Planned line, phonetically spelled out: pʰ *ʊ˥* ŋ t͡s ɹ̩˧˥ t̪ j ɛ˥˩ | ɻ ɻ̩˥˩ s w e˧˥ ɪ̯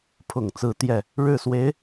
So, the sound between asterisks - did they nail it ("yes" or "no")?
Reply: no